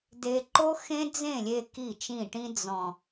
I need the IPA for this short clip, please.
de˧ǃo˦xẽ˦ d͡zẽ˦˨lʲe˧ ki˦˨t͡ʃĩ˦˨ʈĩ˦ d͡zɔ̃˨

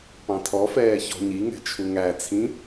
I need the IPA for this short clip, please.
pɑ̃tʰɔfɛː çɔ̤ɲiŋɛ̤ t͡ʃʰuŋæt͡sʰĩ

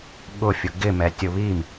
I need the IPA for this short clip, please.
ɠʊfʲʊ ɡɪmɛtʲʊ βim

